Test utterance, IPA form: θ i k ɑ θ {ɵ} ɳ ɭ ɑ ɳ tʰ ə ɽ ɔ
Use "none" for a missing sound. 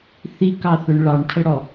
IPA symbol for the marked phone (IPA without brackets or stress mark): ɵ